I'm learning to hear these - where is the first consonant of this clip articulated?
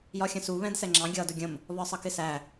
palate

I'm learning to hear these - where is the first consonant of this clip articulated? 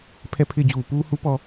lips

